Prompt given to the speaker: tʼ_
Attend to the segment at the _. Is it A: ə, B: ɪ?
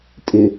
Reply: B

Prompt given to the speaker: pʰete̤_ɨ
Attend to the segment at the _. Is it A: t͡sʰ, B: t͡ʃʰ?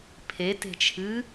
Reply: B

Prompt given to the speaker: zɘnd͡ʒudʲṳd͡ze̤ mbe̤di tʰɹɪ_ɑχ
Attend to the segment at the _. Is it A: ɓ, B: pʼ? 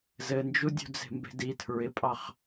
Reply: B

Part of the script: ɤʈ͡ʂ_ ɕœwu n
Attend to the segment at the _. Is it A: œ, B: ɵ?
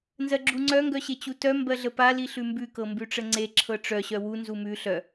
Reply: A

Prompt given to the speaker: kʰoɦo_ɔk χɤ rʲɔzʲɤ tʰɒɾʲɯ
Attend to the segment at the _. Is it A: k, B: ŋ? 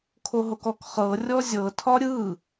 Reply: A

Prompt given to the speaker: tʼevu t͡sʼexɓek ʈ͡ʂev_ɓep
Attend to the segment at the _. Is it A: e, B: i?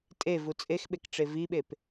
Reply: B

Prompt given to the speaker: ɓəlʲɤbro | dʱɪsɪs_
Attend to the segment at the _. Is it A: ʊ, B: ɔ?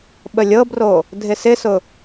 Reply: A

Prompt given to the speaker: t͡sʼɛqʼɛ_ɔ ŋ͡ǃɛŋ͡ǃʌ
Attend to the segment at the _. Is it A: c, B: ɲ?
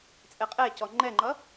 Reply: A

